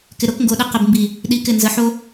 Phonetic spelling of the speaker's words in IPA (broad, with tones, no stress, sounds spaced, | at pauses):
k ɪ˨ ɾ o˧ k ŋ ɡ o˨ ɗ ɪ˧ q ə˨ b m b i˨ | ɗ i˧ k ɪ˦˨ n z ə˨˦ ħ o˦